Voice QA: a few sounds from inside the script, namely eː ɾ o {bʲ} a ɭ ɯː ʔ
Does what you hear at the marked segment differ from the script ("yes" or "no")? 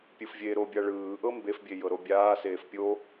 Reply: no